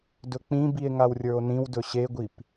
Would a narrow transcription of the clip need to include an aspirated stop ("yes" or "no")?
no